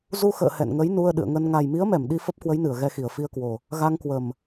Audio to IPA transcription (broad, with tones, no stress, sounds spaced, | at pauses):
z u˧ x ə̰ː˧˨ h ɛ̰˧˨ n ŋ ə˨˦ j n u˧ ə̯ ɗ ɨ̰˧˨ ə̯ ŋ ə˧ n ŋ a˨˩ j m i˨˦ ə̯ m ɛ˧˩ m ɗ i˧ f ə˦˥ p̚ k w ə˨˦ j n ɨ˧˩ ə̯ ɣ ɛ˧ x i˧˩ ə̯ f i˧ ə̯ k w o˨˩ | ɣ a˧ ŋ k w ə˨˩ m